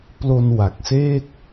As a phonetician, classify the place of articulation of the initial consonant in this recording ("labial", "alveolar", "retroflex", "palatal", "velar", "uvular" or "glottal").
labial